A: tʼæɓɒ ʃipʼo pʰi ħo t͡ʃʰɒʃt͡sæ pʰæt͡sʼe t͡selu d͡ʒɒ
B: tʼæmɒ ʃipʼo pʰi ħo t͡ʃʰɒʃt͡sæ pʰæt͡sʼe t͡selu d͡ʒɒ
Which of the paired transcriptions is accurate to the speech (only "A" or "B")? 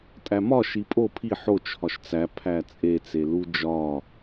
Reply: B